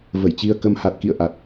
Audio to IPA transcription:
və˧˩jt͡ɕi˧ə̯kə˧m ha˨˩t̚kḭ˧˨ə̯ ʔa˨˩t̚

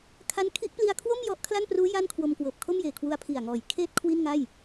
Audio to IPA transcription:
kʰa˦˥n kʰi˦˥ʔpli˧a̯kʰwo˥˩m jɔ˦˥ʔkʰla˥˩npruː˦˥ ja˥˩nkʰwo˧mkwɤː˨˩p̚ kʰo˥˩mjeː˨˩kʰwu˧a̯ pʰi˨˩a̯ŋɔː˩˦jkʰeː˥˩t̚ kʰwi˥˩nŋa˥˩j

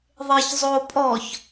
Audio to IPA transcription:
ðˤeçzˤopʼɔç

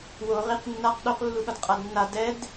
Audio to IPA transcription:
wo ʁiq nːaq ɗoqlːuɠʌd qʼadnːa dɛd

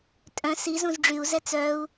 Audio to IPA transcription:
tʼœ̃ si zũzɖ͡ʐyu̯zɛ t͡sœu̯

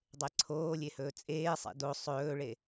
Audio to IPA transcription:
dˤeǀʰoːlʲe hɵːt͡sʼeːsˤḛ do sˤɵːɭe

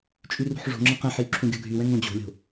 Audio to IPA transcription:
t͡ʃʼyrṳħʐo̤ŋ͡ǁə̃ qɛ̃ħjy ǁʰũɡʲʌɡʱywɛ̃ ŋõd͡ʑo̤lʲo̤

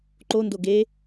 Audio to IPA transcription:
ǃo ndoɡe

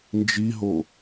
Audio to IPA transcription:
nd͡ʒiɦo

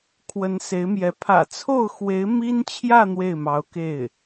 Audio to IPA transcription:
kʰwə˧˥nse˧˥ɪ̯mjɛ˧˥ pʰä̰˨˩t͡sʰo˥˩ʊ̯xwe˧˥ɪ̯ mi˥nt͡ɕʰjä˥˧ n̪we˥˩ɪ̯mɑ˧˥ʊ̯ke˥˩ɪ̯

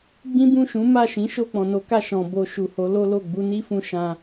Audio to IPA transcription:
ɡ͡bĩ˦bũ˦˨ʃũ˨˦ ma˦˨ʃĩ˨˦ ʃo˦˨k͡pɔ̃˨no˨˦ka˦˨ ʃɔ̃˨bo˧ ʃu˨ho˨˦lo˦lo˦˨ ɡ͡bu˧ni˦fũ˧ ʃã˧

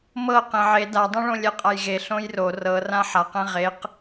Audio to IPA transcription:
mɤ qẽʕe dadˤɛ̃ɭõ lʲɛqʼajɣe ɬõjro rɤ rãħaqɛ̃ ʁeq

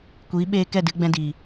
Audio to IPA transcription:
kʷiː˨˦ɓeː˧ kɛ˦˨dɨ˧ɡ͡bɛ̃˧diː˨

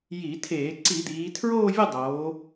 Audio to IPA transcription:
ji˧˩˧tʰeː˧˩˧ ǀi˧˩˧d̪iː˩˧ tʰɹoː˥˧vʲʊ˥˧dˤoː˩˧

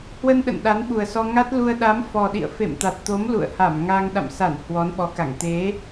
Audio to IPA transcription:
hwə˧n ɗə̰˧˨nɗa˨˦nɓu˨˩ə̯sɔ˧ ŋa˦˥t̚lu˧ə̯ ɗa˨˦mfɔ˨˩ɗḭ˧˨ə̯ fḛ˧˨mt̪a˨˩t̚t̪o˨˦m lṵ˧˨ə̯ha˧˩m ŋa˧ŋ ɗa̰˧˨msa˧˩n hwɔ˨˦nɓɔ˨˦ka˧˩ŋ t̪e˨˦

